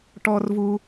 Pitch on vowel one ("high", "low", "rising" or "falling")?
low